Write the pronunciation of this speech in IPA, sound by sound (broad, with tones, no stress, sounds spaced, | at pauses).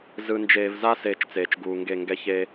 z ɯ˨ n d͡ʒ eː˨ v z a˦ s eː˦˨ t͡ʃ t͡s eː˨ t͡ʃ ɡ uː˨ ŋ ɡ e˦˨ ŋ ɡ ɛ˦ ç e˦